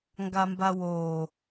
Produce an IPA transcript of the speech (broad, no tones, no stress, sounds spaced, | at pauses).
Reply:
ŋ ɡ a m b a w oː